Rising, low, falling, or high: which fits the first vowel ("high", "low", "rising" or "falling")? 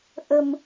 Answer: low